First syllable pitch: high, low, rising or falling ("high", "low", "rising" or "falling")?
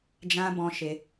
high